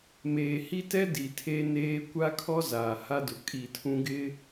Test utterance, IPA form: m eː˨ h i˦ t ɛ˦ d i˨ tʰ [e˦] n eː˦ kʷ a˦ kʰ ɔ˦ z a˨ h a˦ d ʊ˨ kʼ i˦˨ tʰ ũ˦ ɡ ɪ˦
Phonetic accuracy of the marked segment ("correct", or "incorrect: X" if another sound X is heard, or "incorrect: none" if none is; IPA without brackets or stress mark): correct